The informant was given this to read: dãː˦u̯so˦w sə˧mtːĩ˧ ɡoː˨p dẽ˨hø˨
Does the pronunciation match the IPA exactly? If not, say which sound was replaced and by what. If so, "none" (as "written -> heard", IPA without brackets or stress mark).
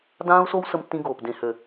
none